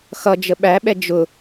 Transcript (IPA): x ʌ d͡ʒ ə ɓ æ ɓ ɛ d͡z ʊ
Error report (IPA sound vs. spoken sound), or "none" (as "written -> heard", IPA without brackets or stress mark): d͡z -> d͡ʒ